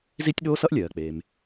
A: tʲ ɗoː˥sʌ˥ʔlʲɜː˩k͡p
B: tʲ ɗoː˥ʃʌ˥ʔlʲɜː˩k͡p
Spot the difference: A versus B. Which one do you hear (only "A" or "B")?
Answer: A